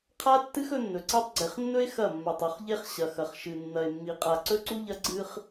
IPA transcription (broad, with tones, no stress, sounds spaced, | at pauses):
qʰ a˦ tː ɨ˦ x ɵ˦ nː ɵ˨ ǀ e˦ tˤ ɡ͡ǀ e˨ χ nː ɵ˦ e̯ x ɐ˦˨ mː a˨ tˤ u˨ χ ʎ e˦ χ ɕ ɐ˨ x ɐ˨ χ ʃ ɨ˨ nː ɐ˨ e̯ mː i˨ qʼ a˨ ǀ ɵ˦ ǀ u˦ ʎ ɐ˦ ɡ͡ǀ ɨ˦ χ